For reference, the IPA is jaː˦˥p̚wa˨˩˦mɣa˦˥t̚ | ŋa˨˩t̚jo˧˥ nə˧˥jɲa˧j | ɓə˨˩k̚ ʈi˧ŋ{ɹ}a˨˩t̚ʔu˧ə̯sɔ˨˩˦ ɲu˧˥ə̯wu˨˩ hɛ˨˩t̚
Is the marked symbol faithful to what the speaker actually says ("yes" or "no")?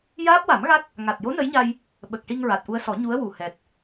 yes